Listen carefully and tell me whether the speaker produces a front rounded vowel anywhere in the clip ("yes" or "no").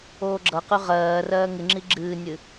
yes